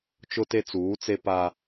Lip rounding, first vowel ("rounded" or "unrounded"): rounded